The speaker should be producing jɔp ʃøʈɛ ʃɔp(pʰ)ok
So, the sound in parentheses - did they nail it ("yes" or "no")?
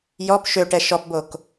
no